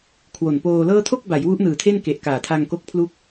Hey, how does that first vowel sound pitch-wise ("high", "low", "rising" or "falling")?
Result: low